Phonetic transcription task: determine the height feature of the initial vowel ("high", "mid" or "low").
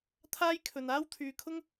low